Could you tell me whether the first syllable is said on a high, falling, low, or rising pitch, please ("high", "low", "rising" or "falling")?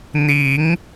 rising